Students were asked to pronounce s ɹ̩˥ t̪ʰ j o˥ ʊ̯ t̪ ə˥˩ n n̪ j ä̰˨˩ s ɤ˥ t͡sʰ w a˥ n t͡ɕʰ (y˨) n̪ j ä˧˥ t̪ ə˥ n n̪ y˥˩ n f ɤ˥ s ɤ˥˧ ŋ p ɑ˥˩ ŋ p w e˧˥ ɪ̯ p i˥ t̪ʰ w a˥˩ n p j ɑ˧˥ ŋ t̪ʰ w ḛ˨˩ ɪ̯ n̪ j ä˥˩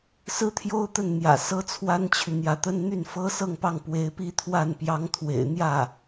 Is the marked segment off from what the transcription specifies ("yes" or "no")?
no